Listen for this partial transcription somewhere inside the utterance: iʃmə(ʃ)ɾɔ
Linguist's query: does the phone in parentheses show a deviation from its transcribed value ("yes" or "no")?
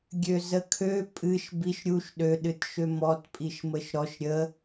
no